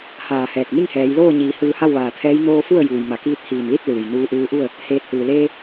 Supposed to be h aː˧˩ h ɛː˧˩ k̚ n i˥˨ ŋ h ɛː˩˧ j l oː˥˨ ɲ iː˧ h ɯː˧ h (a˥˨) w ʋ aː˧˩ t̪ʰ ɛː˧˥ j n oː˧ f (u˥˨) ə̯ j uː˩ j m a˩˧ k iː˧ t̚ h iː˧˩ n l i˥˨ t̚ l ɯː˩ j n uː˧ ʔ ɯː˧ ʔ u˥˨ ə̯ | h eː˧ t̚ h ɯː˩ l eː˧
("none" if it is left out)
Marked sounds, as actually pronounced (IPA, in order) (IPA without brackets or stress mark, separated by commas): a˥˨, u˥˨